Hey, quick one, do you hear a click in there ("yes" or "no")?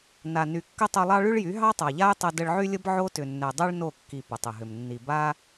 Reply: no